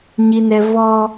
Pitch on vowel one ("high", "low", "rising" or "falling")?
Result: high